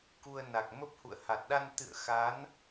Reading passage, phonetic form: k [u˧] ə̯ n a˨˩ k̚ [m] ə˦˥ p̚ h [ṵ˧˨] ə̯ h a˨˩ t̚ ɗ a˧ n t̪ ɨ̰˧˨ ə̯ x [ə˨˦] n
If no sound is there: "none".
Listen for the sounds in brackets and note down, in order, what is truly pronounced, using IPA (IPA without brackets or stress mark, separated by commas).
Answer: u˧, m, ṵ˧˨, a˨˦